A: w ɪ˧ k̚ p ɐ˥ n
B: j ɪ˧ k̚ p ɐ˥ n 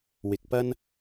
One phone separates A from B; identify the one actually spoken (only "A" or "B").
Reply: A